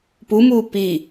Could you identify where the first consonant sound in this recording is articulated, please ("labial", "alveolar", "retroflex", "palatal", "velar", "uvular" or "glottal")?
labial